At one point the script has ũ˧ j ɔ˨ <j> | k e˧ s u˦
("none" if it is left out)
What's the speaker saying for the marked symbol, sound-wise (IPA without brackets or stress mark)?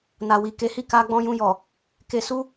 none